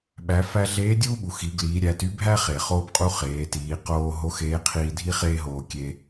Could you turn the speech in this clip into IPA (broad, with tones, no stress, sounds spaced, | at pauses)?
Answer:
ɓ æ˩˧ f æ˧ ɮ eː˧˥ dʲ uː˥ ɓ u˩ x i˩˧ ɡ l iː˩˧ ɾʲ æ˩˧ t y˥ bʱ æ˥ χ e˩ χ oː˧ b qʼ u˧ χ eː˩˧ t iː˩˧ q oː˧ ɦ o˧˥ x eː˧˥ qʰ iː˧ dʱ i˥ χ eː˥ ɦ oː˧ kʲ e˧